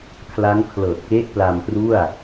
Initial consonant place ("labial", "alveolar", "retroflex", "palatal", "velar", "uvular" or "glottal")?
velar